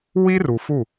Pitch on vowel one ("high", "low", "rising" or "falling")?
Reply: high